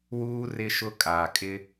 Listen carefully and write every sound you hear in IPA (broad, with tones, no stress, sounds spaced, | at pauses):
w uː˦ r ɪ˦ ʃ ʊ˦ kʼ aː˨ kʼ ɪ˦